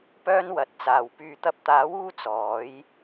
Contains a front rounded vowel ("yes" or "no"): yes